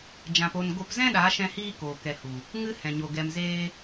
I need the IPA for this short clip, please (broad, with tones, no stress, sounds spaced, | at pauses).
d͡ʒ ã˧ p o˧ n ɡ o˧ p z ɛ̃˦ ɗ a˨˦ ʃ ɛ̃˧ h iː˦ k oː˨ k ɛ˨ h u˨ | ŋ ɨ˦ h ɛ̃˨ ɲ o˨ ɡ ɛ˧ m z eː˦